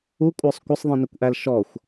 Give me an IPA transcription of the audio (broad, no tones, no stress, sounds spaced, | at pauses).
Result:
u kʷʼ ə˞ sˤ kʷ ə sˤ ðˤ ĩ n ə kʷ ʔ æ l ʃ ɔ xʷ